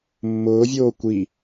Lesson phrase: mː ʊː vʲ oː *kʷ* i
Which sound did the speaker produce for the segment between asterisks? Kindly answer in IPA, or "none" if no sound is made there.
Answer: kʷ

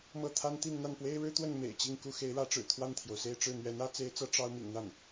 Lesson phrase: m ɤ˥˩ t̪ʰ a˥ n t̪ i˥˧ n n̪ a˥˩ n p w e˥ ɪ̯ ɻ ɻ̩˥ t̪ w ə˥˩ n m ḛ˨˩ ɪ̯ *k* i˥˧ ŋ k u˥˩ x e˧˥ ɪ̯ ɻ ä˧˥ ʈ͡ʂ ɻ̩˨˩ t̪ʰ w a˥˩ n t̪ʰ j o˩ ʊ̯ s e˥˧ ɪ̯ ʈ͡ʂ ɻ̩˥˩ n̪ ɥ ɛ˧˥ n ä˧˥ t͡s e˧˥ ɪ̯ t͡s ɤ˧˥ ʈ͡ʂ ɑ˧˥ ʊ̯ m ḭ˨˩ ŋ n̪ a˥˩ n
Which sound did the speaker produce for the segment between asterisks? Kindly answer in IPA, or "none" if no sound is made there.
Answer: t͡ɕ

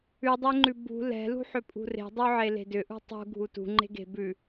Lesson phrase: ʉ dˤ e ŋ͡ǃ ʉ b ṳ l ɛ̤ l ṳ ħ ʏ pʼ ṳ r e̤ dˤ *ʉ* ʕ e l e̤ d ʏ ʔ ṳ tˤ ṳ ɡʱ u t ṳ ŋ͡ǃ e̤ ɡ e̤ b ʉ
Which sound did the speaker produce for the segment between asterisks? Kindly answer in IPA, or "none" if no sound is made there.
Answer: ʉ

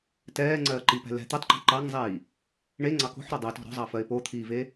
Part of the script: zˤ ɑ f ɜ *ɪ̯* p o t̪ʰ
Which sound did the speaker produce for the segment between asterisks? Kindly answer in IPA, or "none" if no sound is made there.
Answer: ɪ̯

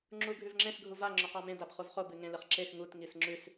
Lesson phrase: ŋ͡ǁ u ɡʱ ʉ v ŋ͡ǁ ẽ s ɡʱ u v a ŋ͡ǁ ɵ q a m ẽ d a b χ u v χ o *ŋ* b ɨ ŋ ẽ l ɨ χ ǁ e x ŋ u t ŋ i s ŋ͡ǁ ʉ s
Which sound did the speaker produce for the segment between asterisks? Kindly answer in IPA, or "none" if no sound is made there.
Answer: none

